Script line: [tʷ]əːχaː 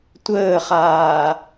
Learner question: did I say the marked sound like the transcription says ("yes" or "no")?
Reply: yes